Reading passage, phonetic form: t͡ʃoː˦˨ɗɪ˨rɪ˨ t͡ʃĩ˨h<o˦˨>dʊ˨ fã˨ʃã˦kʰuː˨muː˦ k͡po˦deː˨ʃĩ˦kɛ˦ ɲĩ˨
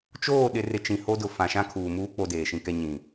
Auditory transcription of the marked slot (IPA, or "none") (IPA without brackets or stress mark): o˦